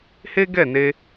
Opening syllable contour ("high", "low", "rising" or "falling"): high